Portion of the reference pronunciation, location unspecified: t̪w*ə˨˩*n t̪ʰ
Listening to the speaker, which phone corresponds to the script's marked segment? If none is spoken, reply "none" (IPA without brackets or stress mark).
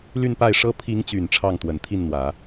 ə˨˩